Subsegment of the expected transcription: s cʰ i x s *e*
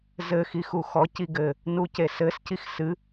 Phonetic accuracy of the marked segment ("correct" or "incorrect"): incorrect